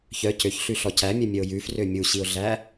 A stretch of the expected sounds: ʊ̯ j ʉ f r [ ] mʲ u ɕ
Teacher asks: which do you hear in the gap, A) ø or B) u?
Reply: A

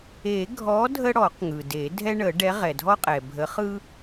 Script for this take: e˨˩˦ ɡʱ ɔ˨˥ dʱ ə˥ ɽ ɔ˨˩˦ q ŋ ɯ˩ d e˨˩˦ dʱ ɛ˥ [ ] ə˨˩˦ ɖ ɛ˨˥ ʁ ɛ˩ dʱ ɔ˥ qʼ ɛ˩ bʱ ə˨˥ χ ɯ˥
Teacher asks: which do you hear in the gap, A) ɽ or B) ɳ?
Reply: B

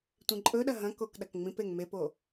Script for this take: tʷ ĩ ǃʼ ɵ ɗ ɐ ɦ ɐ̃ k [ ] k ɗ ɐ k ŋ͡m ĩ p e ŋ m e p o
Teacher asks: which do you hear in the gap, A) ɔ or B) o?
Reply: B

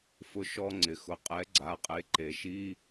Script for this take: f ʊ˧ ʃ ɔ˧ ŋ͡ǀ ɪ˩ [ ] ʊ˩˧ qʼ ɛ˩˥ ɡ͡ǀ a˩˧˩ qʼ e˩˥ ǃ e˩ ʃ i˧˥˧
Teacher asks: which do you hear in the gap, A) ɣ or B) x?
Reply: B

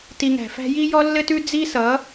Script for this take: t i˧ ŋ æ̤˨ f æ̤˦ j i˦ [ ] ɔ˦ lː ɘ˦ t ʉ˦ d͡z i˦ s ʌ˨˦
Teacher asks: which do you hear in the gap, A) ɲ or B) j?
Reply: B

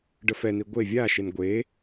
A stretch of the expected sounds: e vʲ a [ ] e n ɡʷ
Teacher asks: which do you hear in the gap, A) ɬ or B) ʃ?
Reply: B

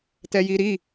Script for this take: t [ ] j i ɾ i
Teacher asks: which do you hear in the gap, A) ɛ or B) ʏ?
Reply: A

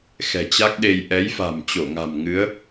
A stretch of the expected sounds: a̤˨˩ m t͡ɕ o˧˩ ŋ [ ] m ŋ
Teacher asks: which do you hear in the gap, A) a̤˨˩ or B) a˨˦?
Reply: A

